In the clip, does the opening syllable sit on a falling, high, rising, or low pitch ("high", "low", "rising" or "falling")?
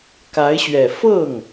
rising